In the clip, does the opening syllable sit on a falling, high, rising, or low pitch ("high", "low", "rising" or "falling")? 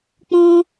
high